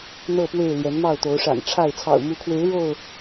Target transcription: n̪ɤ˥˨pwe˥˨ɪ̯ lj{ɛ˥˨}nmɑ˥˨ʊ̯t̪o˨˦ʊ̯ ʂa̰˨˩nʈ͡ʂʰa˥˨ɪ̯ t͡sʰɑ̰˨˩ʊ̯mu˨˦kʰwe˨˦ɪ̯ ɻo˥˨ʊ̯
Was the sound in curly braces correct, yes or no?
no